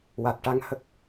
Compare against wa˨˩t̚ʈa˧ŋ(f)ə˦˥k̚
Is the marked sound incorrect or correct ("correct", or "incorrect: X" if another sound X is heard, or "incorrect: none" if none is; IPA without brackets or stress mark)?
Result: incorrect: h